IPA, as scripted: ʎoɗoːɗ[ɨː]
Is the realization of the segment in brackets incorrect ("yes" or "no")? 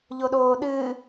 no